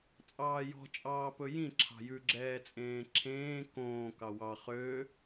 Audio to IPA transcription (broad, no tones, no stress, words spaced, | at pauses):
t͡sʼɑːjɔ̤ t͡ʃʼɑːpɵjĩ ǁʰɑ̤jʉɡ͡ǁɛː t͡sʼẽːǁʰẽː kõː kɑwɑ χø